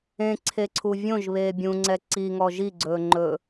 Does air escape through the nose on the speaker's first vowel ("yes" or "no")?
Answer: yes